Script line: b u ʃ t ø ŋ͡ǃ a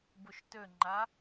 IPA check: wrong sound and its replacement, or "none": u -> o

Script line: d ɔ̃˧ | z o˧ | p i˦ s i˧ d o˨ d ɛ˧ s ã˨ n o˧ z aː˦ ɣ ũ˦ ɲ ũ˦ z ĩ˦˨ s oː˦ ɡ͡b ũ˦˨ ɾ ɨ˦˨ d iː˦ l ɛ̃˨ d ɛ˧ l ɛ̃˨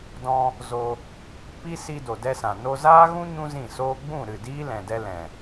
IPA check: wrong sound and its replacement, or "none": none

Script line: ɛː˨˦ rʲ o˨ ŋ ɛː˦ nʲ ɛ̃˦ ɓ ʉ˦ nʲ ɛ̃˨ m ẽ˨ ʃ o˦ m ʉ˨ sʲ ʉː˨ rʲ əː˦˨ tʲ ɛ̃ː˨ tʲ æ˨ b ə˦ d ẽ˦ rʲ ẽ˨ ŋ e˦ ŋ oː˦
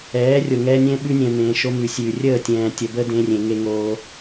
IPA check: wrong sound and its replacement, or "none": æ˨ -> ə˨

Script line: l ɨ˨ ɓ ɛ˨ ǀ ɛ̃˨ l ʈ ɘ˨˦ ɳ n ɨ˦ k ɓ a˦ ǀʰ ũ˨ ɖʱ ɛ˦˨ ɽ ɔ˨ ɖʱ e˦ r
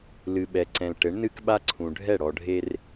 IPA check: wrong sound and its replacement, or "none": none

